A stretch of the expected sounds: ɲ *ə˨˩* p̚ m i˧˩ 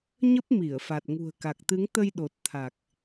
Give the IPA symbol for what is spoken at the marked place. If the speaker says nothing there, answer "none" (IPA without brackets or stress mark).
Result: ə˦˥